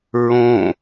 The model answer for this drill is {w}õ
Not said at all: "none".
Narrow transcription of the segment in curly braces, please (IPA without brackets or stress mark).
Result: ɹ